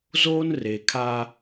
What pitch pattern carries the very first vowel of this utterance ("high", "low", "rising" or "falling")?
high